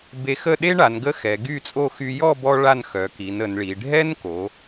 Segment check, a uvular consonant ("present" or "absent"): absent